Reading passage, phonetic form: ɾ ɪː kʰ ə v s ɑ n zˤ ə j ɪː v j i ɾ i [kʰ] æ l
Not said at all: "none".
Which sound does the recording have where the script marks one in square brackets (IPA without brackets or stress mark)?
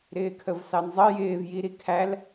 kʰ